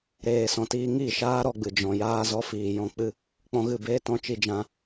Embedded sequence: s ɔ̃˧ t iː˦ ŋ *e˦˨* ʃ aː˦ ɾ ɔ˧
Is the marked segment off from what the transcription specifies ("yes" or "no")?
yes